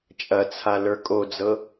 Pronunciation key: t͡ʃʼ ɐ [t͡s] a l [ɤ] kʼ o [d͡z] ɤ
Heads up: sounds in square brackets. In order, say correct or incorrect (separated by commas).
incorrect, incorrect, correct